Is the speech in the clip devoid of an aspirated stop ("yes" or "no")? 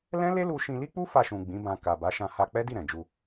yes